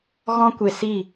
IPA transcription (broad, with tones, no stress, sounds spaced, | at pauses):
ɣ ɔ̃˦ kʷ e˨ s i˦˨